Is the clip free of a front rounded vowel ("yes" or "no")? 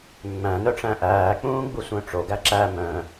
no